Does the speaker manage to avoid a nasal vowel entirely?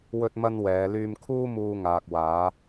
yes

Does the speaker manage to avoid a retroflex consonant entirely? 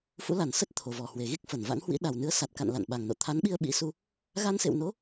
yes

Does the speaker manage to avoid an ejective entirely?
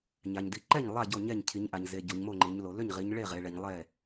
yes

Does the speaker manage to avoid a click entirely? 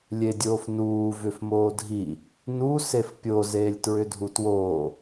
yes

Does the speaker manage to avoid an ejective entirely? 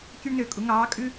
no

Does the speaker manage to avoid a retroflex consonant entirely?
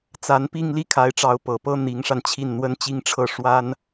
no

